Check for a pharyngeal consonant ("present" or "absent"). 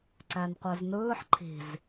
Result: present